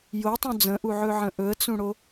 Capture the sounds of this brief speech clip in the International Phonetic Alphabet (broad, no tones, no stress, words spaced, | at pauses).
jotˤũ d͡zə̃ʔuʕɵʕə̃ ʔɵə̯t͡sũɽo